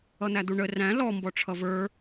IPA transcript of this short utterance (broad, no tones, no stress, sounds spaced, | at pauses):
ʌ n̪ æ d̪ u ɳ ə r æ̃ l ɔ m b ɔ ʈ͡ʂʰ ʌ v ə˞